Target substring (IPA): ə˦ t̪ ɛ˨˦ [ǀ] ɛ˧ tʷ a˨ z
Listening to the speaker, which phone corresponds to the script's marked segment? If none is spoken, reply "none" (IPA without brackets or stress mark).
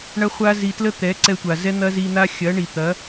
ǀ